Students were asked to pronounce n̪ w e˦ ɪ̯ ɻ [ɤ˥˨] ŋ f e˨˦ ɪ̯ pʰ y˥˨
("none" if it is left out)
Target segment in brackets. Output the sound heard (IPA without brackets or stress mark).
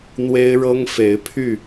ɤ˦